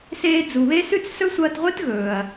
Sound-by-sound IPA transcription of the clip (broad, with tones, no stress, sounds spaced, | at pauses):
s eː˧ d͡z u˨ β e˦ s ʉ˦ t͡s s ɵ˦ sʷ ɐː˧ t ʁʷ ɨ˦ t ɣ ɵː˨ ɐ̯